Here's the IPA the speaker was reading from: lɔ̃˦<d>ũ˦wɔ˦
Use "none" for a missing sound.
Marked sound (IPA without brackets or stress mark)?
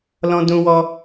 d